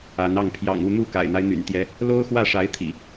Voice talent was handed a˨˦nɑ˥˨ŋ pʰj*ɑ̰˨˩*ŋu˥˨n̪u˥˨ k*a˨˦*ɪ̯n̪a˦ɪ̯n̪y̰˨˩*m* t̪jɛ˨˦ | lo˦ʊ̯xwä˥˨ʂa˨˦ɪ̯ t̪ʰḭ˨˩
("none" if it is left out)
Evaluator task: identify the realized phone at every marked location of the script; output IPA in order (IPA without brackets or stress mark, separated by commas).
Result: ɑ̰˨˩, a̰˨˩, n